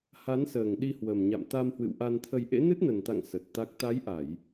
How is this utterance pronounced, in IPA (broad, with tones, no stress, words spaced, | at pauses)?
ha˨˦nsəː˨˩ŋ ɗi˧hwə˨˩mɲa̰˧˨m t̪a˧mhwɨ̰˧˨wʔa˧nt̪ʰə˧j ʔḛ˧˥nɨ˦˥t̚nə˨˩nt̪a̰˧˨ŋ sə˨˩t̚t̪a˦˥k̚ t̪a˨˦jʔa˧˩˨j